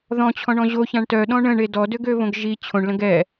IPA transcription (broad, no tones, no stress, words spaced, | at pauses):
ðɔ̃t͡ɕʰɔ̃ɳɔ̃ ʑoçãɳ tœɗɔ̃ ɳə̃ɳe dɔdøɡøβõɡ ʒi t͡ɕʰõɳlə̃ɡ ɛ